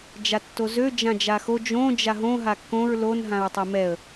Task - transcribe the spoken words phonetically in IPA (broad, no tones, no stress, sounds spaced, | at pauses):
d͡ʒ a tː o z ø d͡ʒ ã d͡ʒ a x o d͡ʒ õ d͡ʒ a ɦ õ ɦ a kː õ ɹ l o n ɦ ã ɹ tˤ o m ɛ ə̯